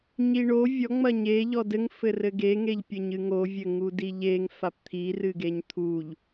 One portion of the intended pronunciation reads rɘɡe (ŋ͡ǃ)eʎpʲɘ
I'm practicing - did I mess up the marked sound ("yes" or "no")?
yes